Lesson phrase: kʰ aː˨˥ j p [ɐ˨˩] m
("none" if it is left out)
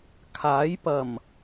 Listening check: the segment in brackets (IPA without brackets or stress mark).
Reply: ɐ˨˩